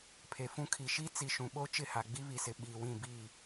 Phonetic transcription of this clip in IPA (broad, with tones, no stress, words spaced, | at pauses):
pʰe˨ fũ˦kʰi˨ ʃi˦t͡si˨ʃũ˨ɓo˦ t͡ʃɪ˦˨ha˨ɡ͡bi˦ βi˨sɪ˨ ɓiː˨wĩ˦˨bi˦˨